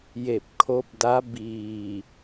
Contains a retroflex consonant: no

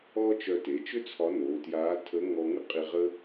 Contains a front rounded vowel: yes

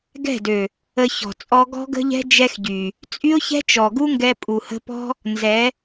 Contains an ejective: yes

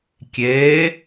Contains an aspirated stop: no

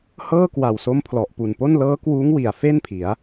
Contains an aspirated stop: yes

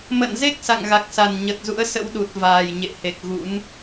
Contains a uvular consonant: no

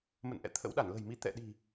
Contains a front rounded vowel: no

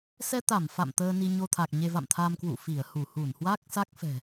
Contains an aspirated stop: yes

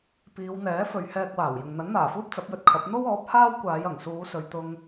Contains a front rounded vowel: no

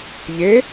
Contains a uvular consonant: no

